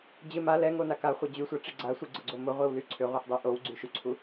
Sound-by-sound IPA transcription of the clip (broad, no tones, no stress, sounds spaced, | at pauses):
d͡ʑ ɪ m a l ɛ ŋ o n a k a χʷ a d͡ʑ y sʷ a ʈ͡ʂ i ɡ͡ǀ a sʷ i ɡ͡ǀ ʊ ɡ͡ǀ o m ʊ ʁʷ i w l y ǀʰ ʏ ʁʷ ɛ ħ dˤ i ʔ o w ɡ͡ǀ y ʃ y ǀʰ u